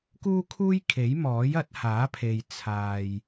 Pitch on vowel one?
high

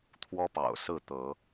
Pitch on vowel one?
high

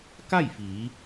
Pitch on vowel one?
falling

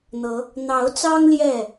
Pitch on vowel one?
rising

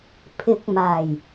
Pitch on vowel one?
rising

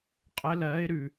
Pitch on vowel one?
rising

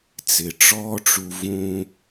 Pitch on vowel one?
low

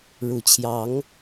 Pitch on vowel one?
low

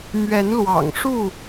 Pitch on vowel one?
rising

